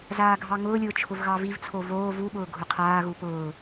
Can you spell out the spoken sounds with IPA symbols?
z aː ɡʱ ɑ ŋ ʊː lʲ ʊː t͡ʃʰ ʊ v ɣ ɑ v i v t͡sʰ o v oː v u ɓ ʊː ɡʱ ʊ qʰ aː ɣ u p ʊː

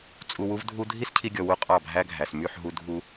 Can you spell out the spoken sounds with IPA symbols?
t͡sʼ u˧ w u˦ v dʱ u˦ dʱ i˦ s cʰ i˧ ɡʲ ɔ˨ w u˦ qʼ ɑ˦˨ bʱ æ˦ ɡʱ æ˨ s m y˦˨ ħ ɦ u˧ dʱ u˧

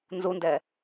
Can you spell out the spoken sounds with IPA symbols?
n z u n d ɛ

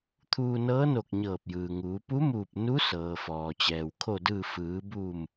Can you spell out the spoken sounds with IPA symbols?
t̪ʰ uː˧ n ɤː˧˥ n o˧˩ k̚ ɲ ɤː˧˩ p̚ j ɯː˩ ŋ uː˩˧ p u˧˥ m uː˧˩ p̚ n u˧˥ s ɤː˩ f ɔː˩ t͡ɕ ɛː˩ w kʰ o˧˩ d ɯː˧˩ f ɯː˩˧ b uː˧˩ m

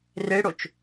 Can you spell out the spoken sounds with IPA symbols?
r e ɽ o t͡ʃ

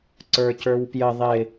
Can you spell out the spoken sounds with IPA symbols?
ǀ ə˞ c ə˞ w p j ə ðˤ ɪ

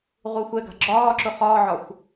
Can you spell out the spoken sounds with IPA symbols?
ʁ u xʷ ɛ ɡ a̤ ɡ͡ǁ ɒː ǁ ʊ χ ɒː ʕ ɒ xʷ

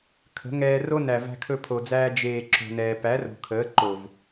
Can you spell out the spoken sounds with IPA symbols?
kʰ ə̤˨˦ ŋ ɛː˧ r o˦ n æ˨ v æ̤˧ kʰ ɵ˧ pʰ o˨ d͡z æː˧ d͡ʒ eː˨ ǁ o̤˨ n ɛː˨ p æ˨˦ r o̤˨ kʰ əː˨˦ ǃ o˨ v

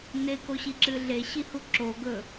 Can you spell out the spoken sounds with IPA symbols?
n e k o ɕ i ǁ ɨ ɮ e ɕ i h u ǁ o ɡ ɵ

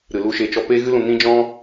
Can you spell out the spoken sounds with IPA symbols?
ɾ ɨ˨ l u˧ ʃ e˨˦ t͡ʃ ɔ˧ p eː˦ ɣ ɨ˦ l ũ˧ n ĩ˦ d͡ʒ ɔ̃˦

